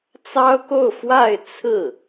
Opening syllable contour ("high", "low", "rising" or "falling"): high